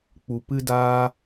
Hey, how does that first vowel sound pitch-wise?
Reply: low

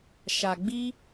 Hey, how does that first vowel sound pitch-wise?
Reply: low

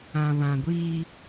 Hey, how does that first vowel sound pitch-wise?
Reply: low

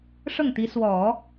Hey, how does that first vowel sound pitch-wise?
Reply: falling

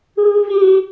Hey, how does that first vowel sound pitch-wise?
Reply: high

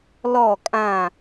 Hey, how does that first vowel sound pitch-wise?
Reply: falling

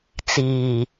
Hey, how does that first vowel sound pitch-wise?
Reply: low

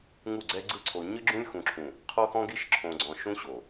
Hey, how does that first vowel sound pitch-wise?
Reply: falling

